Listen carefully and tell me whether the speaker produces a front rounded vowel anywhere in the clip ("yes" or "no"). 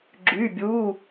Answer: yes